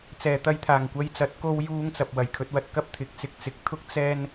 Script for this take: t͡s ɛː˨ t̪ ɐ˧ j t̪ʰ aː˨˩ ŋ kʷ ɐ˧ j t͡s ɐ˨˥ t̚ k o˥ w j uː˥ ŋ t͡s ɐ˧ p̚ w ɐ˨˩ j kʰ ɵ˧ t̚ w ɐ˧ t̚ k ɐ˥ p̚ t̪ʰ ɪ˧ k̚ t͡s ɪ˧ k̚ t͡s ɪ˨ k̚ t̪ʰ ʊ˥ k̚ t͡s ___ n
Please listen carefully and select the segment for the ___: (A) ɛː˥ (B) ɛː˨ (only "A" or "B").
A